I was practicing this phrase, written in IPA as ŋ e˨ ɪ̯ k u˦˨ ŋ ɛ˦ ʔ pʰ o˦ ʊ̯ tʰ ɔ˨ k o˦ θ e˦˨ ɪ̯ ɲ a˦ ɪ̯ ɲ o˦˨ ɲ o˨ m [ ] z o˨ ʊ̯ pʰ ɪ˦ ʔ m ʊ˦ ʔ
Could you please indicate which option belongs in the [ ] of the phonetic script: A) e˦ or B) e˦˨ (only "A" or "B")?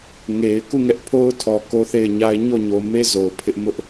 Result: A